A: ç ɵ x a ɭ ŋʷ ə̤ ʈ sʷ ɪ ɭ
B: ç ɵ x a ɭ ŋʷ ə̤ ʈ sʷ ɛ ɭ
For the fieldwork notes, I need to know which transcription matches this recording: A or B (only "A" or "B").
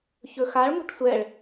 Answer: B